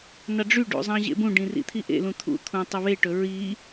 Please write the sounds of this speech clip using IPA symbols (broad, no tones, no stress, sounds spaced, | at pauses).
n ɑ ɖ͡ʐ y ɖ ṵ zˤ ɑ̃ ʑ ḛ b ũ ɖ ĩ r ḭ t̪ʰ i ʔ ḛ l ũ t̪ʰ ṵ t̪ʰ ũ tˤ ɵ β e ʈ ɵ ɹ i